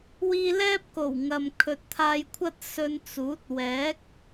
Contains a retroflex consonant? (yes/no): no